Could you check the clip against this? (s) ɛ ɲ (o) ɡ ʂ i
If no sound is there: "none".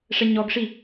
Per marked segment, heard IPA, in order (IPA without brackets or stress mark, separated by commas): ʂ, ɔ